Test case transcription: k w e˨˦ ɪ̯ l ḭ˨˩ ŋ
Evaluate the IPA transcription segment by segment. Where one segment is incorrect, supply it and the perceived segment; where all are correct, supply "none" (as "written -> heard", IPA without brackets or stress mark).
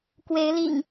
none